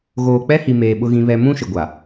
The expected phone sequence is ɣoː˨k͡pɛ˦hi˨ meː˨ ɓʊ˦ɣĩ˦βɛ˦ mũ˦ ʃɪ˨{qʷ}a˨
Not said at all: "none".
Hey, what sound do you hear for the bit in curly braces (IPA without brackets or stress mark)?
ɡʷ